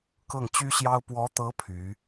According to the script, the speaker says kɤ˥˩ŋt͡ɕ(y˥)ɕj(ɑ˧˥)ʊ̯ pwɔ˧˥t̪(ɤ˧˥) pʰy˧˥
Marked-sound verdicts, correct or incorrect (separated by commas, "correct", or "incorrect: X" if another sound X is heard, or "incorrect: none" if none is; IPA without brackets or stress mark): correct, incorrect: ɑ˥, correct